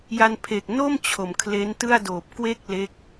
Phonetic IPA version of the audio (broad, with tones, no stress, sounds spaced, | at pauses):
j a˧ n pʰ e˨˩ k̚ n o˥˩ m t͡ɕʰ o˨˩ m kʰ l e˦˥ n t ɯ˥˩ a̯ d oː˨˩ p̚ k w e˥˩ k̚ l e˦˥ k̚